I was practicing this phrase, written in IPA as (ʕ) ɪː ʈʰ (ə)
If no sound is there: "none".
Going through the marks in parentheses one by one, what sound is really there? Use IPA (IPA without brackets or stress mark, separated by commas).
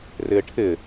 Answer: r, ɪ